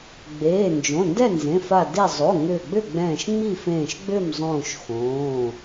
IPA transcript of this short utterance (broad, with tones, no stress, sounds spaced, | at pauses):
ɡ͡b eː˩˧˩ n d͡ʒ õ˩˧˩ n d ɛ˥˨ n z ẽ˩˧˩ f a˧˩ d e˧˩ zˤ o˩˧˩ ŋ ʏː˧˩ ɡ͡b ʏ˥˨ ɡ͡b ɛ̃ː˧˩ ʃ ŋ͡m i˥˨ f ẽː˧˩ ʃ ɡ͡b ʏː˥˨ m zˤ õː˧˩ ʃ x õː˩˧˩